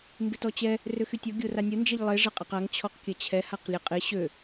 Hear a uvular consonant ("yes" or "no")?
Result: yes